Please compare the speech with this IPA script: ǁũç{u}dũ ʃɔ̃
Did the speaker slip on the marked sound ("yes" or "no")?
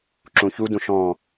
no